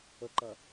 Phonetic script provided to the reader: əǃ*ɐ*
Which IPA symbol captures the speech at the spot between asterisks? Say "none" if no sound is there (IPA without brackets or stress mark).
ɐ